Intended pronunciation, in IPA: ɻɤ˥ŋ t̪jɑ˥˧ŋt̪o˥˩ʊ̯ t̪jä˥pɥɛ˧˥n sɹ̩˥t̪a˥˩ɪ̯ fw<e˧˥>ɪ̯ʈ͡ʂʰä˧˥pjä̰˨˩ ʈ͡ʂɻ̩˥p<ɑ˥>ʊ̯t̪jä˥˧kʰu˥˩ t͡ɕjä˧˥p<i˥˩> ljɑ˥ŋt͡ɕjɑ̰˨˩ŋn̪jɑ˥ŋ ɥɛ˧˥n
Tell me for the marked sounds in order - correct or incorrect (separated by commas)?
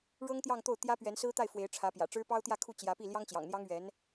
correct, correct, correct